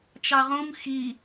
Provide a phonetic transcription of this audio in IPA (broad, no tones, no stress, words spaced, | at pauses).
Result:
t͡ʃɑʁũm xi